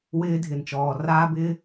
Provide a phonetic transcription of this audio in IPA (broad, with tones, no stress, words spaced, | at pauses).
wɪː˧ dʱɪ˨nt͡ʃɔː˨ raː˧bɪː˧